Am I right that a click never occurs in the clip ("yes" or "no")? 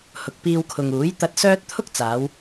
yes